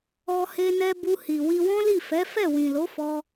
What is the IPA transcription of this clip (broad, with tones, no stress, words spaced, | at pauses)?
ɔ˧he˧nɛ˧ bu˧hi˨ wi˧wɔ̃˦li˦˨ fɛ˨˦fɛ˦˨ wĩ˨lo˨˦ fɔ˧